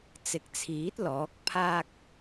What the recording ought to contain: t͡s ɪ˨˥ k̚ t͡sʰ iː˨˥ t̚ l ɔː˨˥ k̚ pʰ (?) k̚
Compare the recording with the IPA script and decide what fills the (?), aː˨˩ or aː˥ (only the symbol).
aː˥